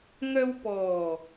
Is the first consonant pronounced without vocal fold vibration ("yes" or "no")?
no